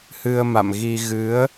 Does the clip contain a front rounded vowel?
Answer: no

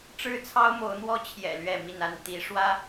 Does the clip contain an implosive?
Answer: no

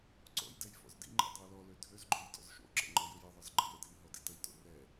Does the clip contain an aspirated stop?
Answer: no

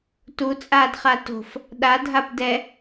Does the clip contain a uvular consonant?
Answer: yes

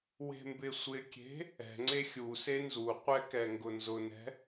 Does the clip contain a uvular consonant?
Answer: yes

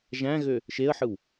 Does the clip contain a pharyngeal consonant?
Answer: yes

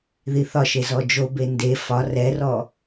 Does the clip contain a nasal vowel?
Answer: no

